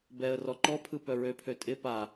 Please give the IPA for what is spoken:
b ɛ ə̯ r ɔ ǃ ɔ pʰ ɯ p œ ɹ ø pʰ ø tʼ ɪ p a

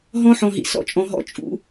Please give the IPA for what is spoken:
ɦ ɔ̃˦ ħ ɔ̃˨ ɦ ḭ˨ s ɔ̰˦ t͡ʃʼ ɔ̃˨ ɦ ɔ̰˦ t͡ʃʼ ṵ˦

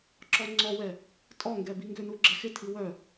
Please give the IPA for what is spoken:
ǁ ɔ ŋ͡ǀ ɔ w ɛ | tʼ ɔ ŋ ɡ ɛ b i ŋ ɡ ʏ n u ɡ͡ǁ ɛ x ɪ tʰ i w œ

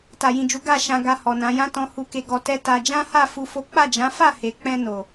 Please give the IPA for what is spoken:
t a˨ j ĩ˨ d͡ʒ u˨˦ ɡ a˦˨ ʃ ã˨ ɡ a˨ h ɔ˨ n ã˨˦ j ã˦ t ɔ̃˧ h u˨ k e˨ ɡ ɔ˨ t ɛ˧ t a˦ d͡ʒ ã˦ h a˦˨ f u˧ f o˦ k͡p a˦˨ d͡ʒ ã˨˦ f a˦˨ h e˨ k͡p ɛ̃˧ n o˨

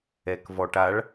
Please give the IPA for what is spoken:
ɛ k v ɔ ʈ a ɭ

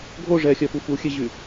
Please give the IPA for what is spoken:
ɡʱ o ʐ ɛ xʲ œ f u f u xʲ e ʑ y

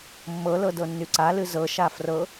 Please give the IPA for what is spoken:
mː ɤ l ɤ d ɤ nː y ǀ a l ɨ z ɤ ʃ a f r ɤ

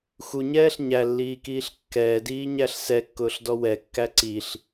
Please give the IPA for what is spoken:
x u ɲ ɛː ɬ ɲ æ lː iː k iː ɬ kː ɛː d iː ɲ æ ɬ s ɛ kː ʊː ɬ d ɔ w ɛ kː æ ǀ i ɬ

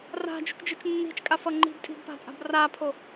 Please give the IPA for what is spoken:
r a̤ d͡ʒ ṳ k d͡ʒ ɯ t͡ʃ nː i̤ t͡ʃ kʼ a f ʌ ŋ͡ǃ i̤ b tʼ i̤ b p a̤ tʼ a̤ b r a pʰ o

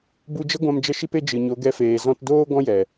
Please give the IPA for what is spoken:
b u˧ d͡ʒ ə˦ ɡʷ ã˧ m d͡ʒ ə˧ ʃ i˧ p e˧ d͡ʒ ɨ˨ ɲ o˨˦ ɡ ɛ˧ f eː˨ z ɔ̃˧ t d oː˦ ɡ ɔ̃˦ j ɛ˨

